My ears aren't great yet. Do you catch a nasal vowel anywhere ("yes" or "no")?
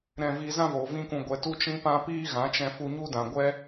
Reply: yes